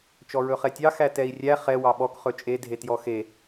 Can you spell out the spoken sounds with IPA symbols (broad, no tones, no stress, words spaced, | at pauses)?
t͡ʃɔɹɵχɛtʲɑ xætɛi̯rʲæ χɛ wɑɓɔk χɵt͡ʃʼe dʱetjɔxe